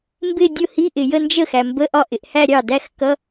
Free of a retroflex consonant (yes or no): yes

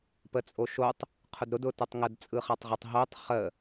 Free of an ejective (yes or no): no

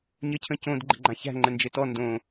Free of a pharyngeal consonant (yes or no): yes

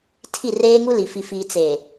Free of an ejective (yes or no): yes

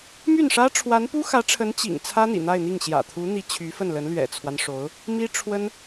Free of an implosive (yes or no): yes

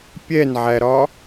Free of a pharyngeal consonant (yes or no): no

